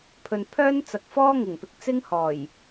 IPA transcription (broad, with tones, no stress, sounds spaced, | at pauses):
pʰ ɵ˨ n pʰ œː˥ n t͡s ɐ˨ k̚ f ɔː˥ ŋ ɪ˨˩ ŋ p ɪ˨ k̚ t͡s ɪ˥ ŋ h ɔː˨˩ j